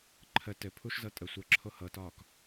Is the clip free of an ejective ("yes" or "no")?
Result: no